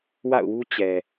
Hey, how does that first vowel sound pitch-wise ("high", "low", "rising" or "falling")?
falling